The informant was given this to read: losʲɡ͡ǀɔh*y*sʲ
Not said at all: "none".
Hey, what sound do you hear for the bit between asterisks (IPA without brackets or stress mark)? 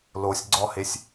e